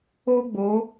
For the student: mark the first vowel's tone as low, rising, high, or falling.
high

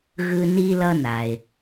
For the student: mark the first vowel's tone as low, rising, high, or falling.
high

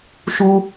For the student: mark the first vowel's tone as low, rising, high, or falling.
low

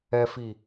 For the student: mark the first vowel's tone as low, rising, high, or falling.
low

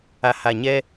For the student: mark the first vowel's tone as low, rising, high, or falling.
low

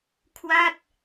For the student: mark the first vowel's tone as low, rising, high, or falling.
falling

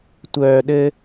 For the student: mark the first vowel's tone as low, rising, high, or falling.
low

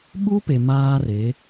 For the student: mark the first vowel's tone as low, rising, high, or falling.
high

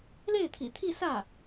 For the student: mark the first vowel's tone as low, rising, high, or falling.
falling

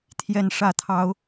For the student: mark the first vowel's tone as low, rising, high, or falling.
falling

